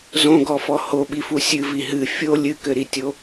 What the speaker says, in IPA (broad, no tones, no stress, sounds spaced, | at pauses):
z õ ɡ ɔ f ɔ h o ɓ i f u sʲ ɨ v i ɦ ɨ fʲ o lʲ ɨ k ɘ ɾ i tʲ o